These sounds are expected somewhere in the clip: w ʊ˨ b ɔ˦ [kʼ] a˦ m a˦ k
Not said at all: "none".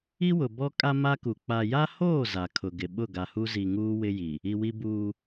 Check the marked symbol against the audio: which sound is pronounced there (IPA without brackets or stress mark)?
kʼ